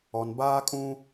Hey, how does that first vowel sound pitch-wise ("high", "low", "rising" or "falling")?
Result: low